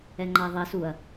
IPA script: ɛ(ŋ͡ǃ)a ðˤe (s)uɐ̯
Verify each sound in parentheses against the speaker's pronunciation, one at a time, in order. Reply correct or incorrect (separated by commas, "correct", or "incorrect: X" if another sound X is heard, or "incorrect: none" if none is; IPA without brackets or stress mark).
correct, correct